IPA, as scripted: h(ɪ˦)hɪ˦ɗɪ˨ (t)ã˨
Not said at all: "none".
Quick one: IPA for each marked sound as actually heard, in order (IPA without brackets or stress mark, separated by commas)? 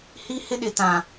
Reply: i˦, t